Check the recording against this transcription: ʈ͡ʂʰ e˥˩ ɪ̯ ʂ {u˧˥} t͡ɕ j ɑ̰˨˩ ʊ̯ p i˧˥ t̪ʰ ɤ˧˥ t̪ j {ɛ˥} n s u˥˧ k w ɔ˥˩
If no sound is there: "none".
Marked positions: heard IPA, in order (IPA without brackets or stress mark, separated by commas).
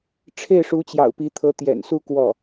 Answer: u˧˥, ɛ̰˨˩